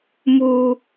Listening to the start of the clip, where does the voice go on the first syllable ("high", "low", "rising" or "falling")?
high